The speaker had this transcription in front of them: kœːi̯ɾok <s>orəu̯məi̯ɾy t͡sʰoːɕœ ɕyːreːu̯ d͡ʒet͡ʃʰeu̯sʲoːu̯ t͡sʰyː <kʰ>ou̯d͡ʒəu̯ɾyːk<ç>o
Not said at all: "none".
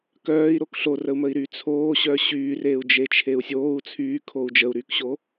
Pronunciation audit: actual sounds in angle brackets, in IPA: ɬ, kʰ, ɕ

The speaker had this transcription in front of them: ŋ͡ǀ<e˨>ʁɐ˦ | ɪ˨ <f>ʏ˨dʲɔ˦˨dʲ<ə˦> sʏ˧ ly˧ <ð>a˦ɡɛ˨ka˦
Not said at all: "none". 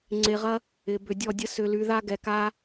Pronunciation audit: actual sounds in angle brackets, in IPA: e˨, b, ə˦, ð

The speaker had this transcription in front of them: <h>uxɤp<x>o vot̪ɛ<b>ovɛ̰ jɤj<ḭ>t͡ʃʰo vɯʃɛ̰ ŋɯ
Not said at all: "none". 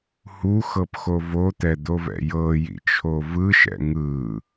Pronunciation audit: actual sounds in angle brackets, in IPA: h, x, d̪, ḭ

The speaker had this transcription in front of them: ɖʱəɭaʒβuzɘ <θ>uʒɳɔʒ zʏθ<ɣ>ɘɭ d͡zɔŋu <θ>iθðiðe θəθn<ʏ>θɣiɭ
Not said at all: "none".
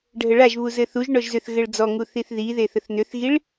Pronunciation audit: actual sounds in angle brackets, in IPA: θ, ɣ, θ, ʏ

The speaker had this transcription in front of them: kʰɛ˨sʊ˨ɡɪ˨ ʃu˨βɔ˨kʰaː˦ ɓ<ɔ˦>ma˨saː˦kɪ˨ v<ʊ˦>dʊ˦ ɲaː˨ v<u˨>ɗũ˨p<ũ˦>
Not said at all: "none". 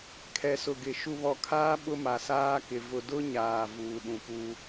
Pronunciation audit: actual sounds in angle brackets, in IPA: ʊ˦, ʊ˨, uː˨, u˦

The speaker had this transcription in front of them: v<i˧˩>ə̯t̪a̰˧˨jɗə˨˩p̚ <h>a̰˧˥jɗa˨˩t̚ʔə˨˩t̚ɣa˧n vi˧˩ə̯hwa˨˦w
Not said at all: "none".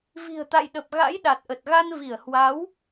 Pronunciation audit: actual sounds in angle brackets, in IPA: i̤˨˩, ɣ

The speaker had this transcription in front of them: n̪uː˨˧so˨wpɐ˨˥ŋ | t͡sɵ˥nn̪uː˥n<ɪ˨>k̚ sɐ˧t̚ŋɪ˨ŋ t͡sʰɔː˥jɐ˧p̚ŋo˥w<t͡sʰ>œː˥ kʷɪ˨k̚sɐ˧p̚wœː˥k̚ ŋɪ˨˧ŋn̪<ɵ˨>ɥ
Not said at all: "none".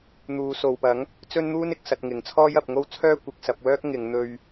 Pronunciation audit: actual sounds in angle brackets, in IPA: ɪ˨, t͡sʰ, ɵ˧

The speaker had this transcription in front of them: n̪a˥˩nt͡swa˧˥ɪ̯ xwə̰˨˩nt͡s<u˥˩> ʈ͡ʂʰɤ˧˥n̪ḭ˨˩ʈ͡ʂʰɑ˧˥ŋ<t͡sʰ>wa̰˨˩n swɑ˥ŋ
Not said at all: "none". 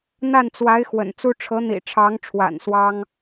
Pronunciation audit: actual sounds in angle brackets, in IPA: u˥, ʈ͡ʂʰ

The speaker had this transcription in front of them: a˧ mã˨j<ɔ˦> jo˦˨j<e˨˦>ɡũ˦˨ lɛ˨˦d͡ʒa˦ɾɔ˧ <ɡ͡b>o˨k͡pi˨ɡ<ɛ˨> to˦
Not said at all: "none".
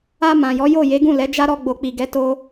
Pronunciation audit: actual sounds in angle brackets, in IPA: ɔ˨˦, e˨˦, ɡ͡b, ɛ˨˦

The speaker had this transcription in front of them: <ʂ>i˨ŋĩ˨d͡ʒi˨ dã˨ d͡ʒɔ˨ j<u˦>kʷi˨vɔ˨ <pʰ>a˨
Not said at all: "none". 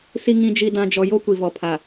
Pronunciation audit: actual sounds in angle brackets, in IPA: s, o˦, pʰ

